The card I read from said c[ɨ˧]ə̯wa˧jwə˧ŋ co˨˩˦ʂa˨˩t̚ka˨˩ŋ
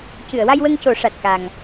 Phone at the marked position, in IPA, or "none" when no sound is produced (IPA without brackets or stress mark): ɨ˨˩˨